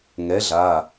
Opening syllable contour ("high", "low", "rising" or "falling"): rising